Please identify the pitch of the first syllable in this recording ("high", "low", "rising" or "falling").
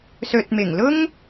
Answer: low